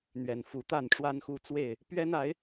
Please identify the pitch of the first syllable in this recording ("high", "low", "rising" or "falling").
low